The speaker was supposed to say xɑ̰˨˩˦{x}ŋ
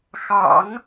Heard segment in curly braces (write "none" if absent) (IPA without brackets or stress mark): none